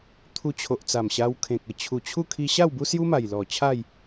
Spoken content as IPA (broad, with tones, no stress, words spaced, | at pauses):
t̪ʰu˧t͡ɕʰo˨ʔt͡sa˨˩m ɕa˧wkʰẽ˨k̚ə˨˩ t͡ɕʰu˨˩t͡ɕʰu˥˧ kʰi˧ɕa˥˧w bu˦sju˦ma˨˩jlɔ˨˩ t͡ɕʰa˥˧j